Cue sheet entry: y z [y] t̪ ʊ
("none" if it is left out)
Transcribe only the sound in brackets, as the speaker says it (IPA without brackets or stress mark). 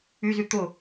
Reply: y